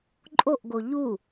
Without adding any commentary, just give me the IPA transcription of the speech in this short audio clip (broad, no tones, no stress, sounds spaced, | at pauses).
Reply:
ǃʼ o ʔ ɡ o ʎ u